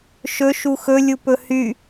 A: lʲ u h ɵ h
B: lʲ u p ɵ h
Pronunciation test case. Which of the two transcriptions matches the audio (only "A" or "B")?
B